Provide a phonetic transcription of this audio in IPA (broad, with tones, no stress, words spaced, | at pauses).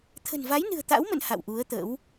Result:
t̪ʰə̤˨˩nva˨˦jnɨ̤˨˩ə̯ t̪a̰˧˥wmə̰˧˨n ha̰˧˨wʔu˨˦ə̯t̪ə̰˧˥w